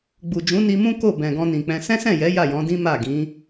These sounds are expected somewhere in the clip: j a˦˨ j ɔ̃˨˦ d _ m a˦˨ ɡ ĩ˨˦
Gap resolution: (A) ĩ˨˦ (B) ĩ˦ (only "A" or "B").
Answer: B